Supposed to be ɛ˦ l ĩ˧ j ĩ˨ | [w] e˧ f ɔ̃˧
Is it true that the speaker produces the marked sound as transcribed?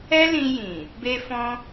no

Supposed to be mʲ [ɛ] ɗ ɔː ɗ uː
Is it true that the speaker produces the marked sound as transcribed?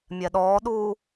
yes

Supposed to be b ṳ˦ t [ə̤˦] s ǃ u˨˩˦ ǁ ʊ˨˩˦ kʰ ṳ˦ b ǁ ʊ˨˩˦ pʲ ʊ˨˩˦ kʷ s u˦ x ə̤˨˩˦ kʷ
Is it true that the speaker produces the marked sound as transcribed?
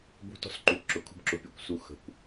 no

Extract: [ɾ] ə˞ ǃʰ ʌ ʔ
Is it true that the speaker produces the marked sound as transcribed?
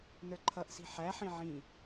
no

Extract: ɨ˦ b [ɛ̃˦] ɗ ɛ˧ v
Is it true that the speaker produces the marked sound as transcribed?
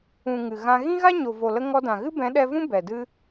no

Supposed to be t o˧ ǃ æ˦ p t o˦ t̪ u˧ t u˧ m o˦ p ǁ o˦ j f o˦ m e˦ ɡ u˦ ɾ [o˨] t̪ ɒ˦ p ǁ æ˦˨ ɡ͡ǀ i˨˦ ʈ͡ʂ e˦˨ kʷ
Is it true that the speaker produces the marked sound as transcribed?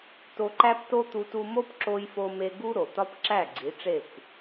yes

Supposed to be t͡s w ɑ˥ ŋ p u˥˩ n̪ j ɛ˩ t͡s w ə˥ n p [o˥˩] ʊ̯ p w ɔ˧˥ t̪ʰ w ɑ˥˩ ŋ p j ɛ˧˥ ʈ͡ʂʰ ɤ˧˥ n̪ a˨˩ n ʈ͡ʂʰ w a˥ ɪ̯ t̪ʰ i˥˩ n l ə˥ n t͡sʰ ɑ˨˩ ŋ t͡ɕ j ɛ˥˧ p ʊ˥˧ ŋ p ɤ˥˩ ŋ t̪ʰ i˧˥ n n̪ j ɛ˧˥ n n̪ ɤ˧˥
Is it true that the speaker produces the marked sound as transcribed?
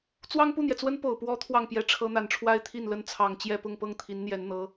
no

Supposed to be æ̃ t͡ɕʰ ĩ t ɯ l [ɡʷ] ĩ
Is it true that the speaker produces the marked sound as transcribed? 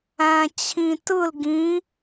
no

